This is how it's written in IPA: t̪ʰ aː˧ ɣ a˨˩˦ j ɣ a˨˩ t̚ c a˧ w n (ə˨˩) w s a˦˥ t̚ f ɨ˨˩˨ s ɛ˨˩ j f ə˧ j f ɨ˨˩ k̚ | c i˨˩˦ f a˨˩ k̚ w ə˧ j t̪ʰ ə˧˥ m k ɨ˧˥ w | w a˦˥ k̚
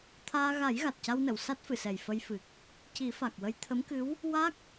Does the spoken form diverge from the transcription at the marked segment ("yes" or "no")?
yes